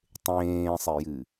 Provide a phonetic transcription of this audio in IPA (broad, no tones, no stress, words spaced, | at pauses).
tˤẽːsˤejɨ